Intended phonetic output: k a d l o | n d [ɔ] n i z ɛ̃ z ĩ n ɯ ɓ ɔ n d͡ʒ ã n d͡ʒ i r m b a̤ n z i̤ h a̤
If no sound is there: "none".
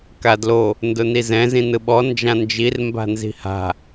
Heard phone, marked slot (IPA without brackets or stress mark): ʊ